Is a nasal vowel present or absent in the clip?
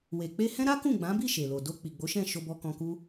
present